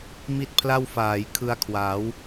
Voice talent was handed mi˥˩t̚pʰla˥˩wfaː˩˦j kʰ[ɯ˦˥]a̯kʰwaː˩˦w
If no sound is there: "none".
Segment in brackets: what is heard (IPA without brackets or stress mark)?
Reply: ɯ˧